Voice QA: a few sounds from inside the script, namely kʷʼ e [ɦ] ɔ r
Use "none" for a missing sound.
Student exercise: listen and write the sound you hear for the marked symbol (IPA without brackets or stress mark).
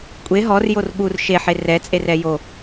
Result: ɦ